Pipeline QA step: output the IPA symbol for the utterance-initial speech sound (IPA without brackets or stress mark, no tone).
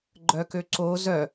ɡ͡ǃ